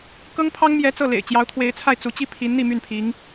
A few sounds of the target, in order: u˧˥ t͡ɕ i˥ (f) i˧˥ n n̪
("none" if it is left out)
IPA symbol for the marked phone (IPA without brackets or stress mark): pʰ